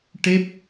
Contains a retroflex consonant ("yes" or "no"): yes